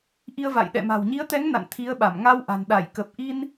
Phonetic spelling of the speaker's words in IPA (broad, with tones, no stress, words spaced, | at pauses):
ʔi˧ə̯va̰˧˨jɗɛ̰˧˨ma̤˨˩w ɲi˨˦ə̯t̪ɛ˨˦ŋ na̰˧˨nt̪ʰi˨˦ə̯ɓa˧˩m ŋa˧w ʔa̤˨˩n ɗa˧˩jkə˨˩p̚ʔi˧n